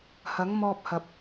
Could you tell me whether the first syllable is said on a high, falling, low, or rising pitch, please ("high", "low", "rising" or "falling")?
rising